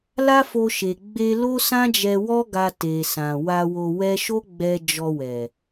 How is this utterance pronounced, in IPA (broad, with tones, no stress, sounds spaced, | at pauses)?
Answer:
l a˦ f o˧ ʃ e˨ ɡ͡b e˧ l o˦ s ã˦ d͡ʒ ɛ˧ w ɔ˦ ɡ a˧ t e˨ s ã˨ w a˧ w o˧ w ɛ˦ ʃ o˦ ɡ͡b ɛ˧ d͡ʒ ɔ˧ w ɛ˨